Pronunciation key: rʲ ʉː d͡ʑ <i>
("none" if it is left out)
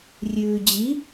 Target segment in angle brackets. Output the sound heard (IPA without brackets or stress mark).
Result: i